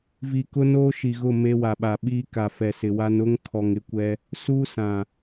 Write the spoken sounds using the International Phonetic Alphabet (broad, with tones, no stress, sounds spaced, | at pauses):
v i˨ k ʊ˦ n oː˦ ʃ i˨ ɣ ʊ˦˨ m e˦ w a˨ ɓ a˨ ɓ iː˦ k a˨ f ɛ˨ s ɪ˨ w a˦ n ʊ˦ ŋ kʰ ɔ˨ ŋ ɪ˦ kʷ ɛ˦ | s uː˦ s ã˨